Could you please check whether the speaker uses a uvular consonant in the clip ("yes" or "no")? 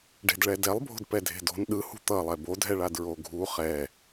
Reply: yes